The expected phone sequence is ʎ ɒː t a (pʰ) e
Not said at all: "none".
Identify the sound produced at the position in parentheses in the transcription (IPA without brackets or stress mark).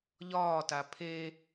pʰ